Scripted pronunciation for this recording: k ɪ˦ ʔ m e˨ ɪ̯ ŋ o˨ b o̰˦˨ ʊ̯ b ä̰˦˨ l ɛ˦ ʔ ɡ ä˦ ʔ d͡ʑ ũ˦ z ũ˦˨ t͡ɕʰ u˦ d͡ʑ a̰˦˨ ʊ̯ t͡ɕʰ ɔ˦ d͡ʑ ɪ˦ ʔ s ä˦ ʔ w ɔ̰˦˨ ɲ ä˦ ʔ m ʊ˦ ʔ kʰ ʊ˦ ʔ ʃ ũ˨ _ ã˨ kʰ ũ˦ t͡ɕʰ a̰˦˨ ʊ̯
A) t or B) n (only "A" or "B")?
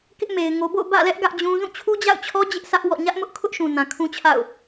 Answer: B